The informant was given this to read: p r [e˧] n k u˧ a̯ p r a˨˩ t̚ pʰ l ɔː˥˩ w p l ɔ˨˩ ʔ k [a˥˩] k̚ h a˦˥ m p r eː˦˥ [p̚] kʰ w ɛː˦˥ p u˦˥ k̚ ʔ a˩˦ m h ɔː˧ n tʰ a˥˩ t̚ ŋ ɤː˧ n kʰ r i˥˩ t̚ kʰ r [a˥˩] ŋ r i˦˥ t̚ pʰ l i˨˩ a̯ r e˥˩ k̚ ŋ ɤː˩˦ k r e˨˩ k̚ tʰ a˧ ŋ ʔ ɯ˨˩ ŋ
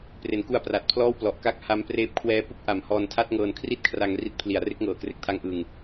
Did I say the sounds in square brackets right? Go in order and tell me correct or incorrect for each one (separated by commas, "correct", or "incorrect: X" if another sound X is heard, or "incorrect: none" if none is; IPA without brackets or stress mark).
incorrect: e˩˦, correct, correct, incorrect: a˧